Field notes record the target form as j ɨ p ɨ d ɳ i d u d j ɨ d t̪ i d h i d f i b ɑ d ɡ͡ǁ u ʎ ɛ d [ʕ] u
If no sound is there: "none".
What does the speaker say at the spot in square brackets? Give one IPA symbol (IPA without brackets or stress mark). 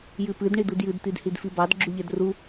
r